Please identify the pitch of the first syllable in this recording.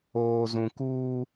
low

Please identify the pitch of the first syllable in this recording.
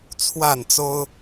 falling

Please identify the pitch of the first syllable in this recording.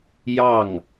falling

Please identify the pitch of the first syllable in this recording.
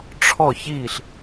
falling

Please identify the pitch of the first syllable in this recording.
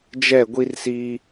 falling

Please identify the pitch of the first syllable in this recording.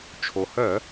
low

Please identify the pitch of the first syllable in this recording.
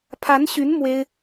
rising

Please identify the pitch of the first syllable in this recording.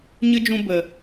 high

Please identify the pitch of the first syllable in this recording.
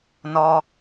high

